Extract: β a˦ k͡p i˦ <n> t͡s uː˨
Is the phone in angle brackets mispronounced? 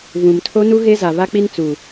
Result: no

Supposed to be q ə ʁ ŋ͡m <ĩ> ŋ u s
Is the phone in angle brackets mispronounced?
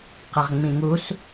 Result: no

